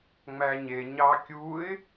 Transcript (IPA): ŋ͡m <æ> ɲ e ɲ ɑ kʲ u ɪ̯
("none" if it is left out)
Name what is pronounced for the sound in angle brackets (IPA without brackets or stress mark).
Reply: æ